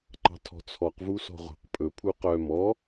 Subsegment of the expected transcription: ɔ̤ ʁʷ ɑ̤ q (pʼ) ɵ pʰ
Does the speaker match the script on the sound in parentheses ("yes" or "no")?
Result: yes